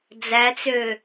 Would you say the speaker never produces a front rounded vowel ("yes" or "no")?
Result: no